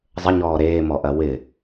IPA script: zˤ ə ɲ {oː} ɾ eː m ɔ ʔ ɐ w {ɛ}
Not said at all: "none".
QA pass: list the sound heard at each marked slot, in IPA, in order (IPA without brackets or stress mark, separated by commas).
ɔː, ɪ